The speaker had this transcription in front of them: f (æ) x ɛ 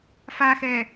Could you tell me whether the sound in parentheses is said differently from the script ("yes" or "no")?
yes